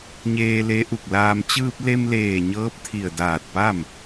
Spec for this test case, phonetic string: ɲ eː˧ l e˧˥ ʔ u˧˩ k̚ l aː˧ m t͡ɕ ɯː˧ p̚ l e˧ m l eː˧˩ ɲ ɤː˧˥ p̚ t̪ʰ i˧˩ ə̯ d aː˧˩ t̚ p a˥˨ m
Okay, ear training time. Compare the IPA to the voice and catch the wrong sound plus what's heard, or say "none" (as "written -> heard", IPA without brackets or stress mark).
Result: none